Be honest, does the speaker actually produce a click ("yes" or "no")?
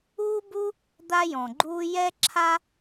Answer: yes